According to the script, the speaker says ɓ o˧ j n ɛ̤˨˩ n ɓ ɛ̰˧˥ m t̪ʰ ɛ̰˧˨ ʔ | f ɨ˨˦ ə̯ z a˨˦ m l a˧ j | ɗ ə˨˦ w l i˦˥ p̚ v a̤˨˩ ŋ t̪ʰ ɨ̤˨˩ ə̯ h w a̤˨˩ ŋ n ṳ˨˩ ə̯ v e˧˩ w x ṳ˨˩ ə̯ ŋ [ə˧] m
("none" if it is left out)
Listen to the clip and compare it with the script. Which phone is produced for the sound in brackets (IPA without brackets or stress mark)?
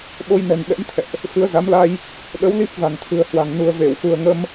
ə˧